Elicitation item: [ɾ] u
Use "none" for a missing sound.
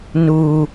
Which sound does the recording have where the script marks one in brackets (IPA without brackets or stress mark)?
n